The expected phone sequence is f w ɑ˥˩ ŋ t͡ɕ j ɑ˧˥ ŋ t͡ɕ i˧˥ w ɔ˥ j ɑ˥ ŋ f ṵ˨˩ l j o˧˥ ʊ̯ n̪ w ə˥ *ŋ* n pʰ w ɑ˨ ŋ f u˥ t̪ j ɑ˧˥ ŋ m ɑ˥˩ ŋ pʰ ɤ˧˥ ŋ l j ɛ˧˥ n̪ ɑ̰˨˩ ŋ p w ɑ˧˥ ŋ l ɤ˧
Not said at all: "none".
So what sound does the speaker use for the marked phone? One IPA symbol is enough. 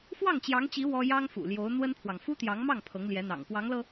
none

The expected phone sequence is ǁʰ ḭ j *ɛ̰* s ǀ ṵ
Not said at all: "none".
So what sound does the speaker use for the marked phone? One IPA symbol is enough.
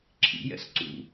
ɛ̰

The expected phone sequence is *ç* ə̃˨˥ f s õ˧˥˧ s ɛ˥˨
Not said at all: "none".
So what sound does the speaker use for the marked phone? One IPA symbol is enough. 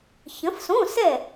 ç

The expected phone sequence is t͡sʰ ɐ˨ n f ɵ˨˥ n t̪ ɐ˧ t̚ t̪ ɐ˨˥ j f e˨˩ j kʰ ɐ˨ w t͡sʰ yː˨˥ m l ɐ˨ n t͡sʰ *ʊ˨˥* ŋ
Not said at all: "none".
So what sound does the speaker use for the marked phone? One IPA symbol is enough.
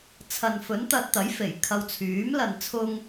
ʊ˧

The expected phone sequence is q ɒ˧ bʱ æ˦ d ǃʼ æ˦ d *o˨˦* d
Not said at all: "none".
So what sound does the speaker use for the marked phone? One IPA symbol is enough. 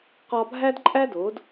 o˨˦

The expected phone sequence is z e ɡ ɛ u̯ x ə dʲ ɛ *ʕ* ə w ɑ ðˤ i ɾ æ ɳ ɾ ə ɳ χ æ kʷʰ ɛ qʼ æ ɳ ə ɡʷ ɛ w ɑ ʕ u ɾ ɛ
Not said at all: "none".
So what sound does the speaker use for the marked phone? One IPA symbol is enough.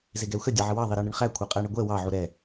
ʕ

